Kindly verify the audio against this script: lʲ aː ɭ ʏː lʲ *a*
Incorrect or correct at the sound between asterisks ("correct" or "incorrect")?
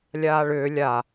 correct